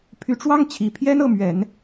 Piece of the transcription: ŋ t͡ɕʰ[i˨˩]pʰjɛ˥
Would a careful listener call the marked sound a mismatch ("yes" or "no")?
no